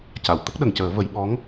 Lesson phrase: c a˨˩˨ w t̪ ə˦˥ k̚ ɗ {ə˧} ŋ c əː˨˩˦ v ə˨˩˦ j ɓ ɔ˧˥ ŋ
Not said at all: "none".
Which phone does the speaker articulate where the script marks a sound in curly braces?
ə˨˩˨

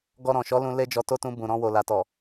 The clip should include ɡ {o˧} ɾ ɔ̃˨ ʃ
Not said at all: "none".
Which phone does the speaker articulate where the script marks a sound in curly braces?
ɔ˧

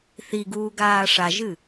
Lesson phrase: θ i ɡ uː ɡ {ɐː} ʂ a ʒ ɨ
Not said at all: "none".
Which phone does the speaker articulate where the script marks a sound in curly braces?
aː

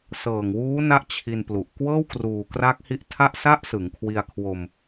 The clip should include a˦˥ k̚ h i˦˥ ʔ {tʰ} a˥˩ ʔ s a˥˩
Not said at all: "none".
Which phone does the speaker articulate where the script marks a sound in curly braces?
tʰ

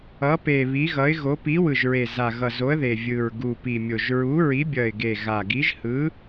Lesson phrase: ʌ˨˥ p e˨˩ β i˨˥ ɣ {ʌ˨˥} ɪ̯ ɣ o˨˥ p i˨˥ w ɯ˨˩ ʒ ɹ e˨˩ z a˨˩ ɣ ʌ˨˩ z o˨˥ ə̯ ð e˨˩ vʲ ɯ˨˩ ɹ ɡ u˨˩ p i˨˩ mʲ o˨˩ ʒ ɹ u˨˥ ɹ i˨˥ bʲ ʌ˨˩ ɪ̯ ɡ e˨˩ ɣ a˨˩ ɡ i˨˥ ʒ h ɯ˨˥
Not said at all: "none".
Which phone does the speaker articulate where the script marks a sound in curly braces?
ʌ˨˥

